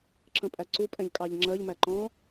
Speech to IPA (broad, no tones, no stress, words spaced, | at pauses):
ǁə̃pʼæǀu pʼɛ̃ʎkʼɑʎŋ͡ǁɜʎ mæǃɔ̃